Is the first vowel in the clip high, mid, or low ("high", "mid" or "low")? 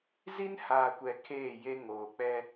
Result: high